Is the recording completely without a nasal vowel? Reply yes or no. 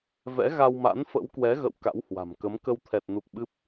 yes